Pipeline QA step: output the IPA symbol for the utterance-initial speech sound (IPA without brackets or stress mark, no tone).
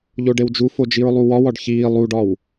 ʎ